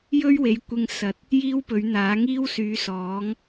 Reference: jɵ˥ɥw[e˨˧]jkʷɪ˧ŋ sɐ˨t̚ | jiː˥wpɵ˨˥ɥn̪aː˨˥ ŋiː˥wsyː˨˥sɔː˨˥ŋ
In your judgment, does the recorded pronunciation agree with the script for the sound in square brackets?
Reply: yes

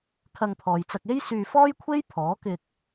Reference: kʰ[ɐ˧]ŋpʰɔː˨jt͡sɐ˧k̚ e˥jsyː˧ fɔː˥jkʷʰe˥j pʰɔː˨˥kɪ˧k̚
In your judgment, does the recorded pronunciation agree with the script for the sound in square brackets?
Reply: yes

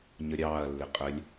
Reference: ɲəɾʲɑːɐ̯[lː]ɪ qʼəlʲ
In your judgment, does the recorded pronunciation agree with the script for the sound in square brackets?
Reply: yes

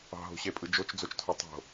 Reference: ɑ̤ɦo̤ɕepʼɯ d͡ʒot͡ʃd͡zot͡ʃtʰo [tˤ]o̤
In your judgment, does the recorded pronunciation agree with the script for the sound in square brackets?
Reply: yes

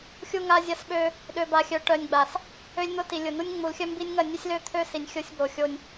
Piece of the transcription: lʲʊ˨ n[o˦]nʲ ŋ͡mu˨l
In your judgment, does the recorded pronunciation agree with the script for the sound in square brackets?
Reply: no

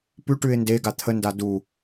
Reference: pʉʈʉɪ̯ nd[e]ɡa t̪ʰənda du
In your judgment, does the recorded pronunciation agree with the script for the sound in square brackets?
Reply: yes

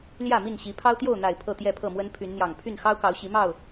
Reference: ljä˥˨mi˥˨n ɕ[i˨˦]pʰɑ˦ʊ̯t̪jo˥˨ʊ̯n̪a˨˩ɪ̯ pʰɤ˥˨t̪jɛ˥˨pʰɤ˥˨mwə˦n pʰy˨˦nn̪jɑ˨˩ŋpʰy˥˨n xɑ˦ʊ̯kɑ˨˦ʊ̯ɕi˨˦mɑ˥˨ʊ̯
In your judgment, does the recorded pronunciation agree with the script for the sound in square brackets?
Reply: yes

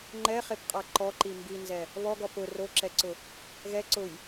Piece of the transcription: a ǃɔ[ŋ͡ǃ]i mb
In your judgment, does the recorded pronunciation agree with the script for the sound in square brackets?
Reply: no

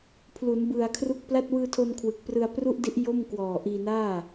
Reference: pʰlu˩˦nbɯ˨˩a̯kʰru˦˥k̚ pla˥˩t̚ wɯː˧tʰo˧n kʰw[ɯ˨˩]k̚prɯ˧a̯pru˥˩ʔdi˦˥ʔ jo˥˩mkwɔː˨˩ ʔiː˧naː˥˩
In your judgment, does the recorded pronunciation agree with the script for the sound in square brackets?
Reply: yes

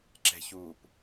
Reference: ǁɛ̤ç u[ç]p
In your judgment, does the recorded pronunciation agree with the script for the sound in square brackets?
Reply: no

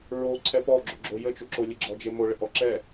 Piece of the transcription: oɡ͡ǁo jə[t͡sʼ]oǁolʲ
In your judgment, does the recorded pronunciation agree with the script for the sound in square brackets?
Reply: no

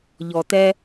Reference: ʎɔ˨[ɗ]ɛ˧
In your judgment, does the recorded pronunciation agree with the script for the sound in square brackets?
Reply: no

